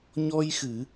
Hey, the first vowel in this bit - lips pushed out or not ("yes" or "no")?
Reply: yes